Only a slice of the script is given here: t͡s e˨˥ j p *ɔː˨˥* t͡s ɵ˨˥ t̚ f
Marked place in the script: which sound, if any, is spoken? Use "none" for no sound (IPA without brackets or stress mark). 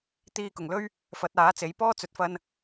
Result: ɔː˥